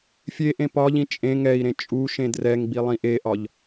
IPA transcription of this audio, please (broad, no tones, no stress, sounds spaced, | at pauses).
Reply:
fʲ e ʔ ẽ p ɒ ʎ ĩ t͡ʃʼ ẽ ŋ ɛ i̯ ɾ ẽ t͡ʃʼ u ʃ ẽ d r ɛ ŋ ɡ͡b i lˠ ĩ ʔ e ʔ ɒ ʎ